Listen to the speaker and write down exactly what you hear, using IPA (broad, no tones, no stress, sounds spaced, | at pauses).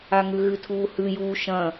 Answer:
a ŋ ʉ ɣ ɨ tʰ uː h ʉ j uː ʃ ɐ̃